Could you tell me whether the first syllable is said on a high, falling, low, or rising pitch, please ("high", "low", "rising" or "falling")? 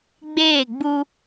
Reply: falling